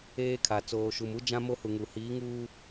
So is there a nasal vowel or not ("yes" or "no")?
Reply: yes